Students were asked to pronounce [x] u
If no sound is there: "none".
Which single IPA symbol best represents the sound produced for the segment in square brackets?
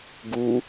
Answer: ɡ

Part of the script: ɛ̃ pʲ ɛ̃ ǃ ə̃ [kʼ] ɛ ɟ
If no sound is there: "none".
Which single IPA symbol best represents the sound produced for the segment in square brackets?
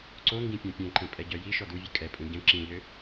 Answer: pʼ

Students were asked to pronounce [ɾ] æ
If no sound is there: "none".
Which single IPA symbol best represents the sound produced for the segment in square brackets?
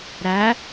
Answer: ɾ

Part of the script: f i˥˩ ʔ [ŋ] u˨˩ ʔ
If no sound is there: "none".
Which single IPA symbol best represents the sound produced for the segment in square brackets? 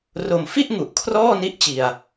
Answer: ŋ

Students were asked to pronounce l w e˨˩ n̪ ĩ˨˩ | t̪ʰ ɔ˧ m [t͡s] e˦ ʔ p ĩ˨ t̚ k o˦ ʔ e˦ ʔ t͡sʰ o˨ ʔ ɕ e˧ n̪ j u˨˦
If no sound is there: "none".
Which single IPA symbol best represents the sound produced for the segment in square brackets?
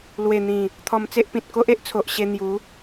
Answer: t͡s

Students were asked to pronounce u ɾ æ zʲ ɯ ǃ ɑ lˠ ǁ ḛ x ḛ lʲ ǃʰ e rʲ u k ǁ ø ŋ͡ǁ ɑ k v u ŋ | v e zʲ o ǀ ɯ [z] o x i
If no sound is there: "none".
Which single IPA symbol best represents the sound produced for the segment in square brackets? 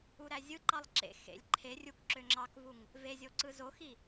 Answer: z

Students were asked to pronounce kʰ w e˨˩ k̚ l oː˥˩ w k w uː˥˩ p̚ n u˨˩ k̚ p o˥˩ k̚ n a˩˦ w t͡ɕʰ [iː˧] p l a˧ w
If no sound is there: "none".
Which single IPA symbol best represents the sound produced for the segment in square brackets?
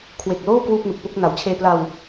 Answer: eː˧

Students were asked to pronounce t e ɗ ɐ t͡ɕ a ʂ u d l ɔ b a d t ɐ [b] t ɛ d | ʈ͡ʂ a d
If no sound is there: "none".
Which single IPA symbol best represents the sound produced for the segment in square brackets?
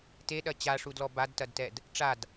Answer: d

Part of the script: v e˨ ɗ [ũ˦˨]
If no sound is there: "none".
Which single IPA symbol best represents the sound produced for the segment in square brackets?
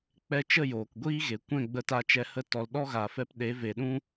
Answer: ũ˦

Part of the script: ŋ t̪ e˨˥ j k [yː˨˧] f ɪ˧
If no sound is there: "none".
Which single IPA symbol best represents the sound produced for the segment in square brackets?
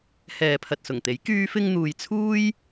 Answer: yː˧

